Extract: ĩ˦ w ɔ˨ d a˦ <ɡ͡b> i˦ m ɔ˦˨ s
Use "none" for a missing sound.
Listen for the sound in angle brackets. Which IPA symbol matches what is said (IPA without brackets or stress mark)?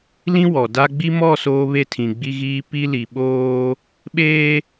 ɡ͡b